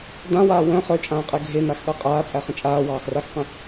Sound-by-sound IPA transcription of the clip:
dãwaː wœ̃ χœt͡ʃʼãːqʼɛ ɡʱenaxɠa qʼaːt͡sʼæχə̃ t͡ʃʼaːwɑːxraxqə̃

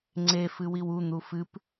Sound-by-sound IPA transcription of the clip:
ŋ͡ǀe fɨwiwun̪u fɨp

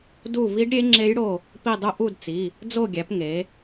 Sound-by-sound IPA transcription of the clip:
du˦˨ vi˦˥ɖɾʲe˦˥ ŋ͡ǁe˦˥jɽo˦˨ | pi˦˨dˤu˦˥ ʔu˦˨d t͡si˩˧˩ | d͡zo˦˨ɡʲæ˩˧p ŋe˩˧

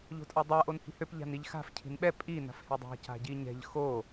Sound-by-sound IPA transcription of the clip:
ʎo̤tʼadˤa ʔonhi̤høp ʎa̤niʎxa̤f cʰi̤nɓɛ pʼi na̤fhedˤa̤ ca̤ɟiɲɛ̤ʎ xo

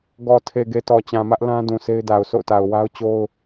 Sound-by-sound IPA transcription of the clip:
ɡɔ˨ tʰe˨ɡe˨ tɔ˨t͡ɕã˨mä˦ʔ lã˦ dũ˨sʰe˦ɪ̯da˨ʊ̯ so̰˦˨ʊ̯ta˨ʊ̯wa˦ʊ̯ t͡ɕo˦ʊ̯

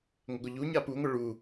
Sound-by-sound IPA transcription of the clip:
ŋʷəɡʷəʎuɲa puŋʷə ɭu

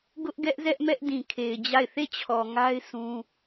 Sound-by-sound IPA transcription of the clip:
ɡʊ˦ʔɡɛ˦ʔzɛ˦ʔmɛ˦ʔ dĩ˨kʰe˨ɪ̯d͡ʑa˦˨ɪ̯ θe˦˨t͡ɕʰɔ˨ ŋa˦ɪ̯ sũ˦

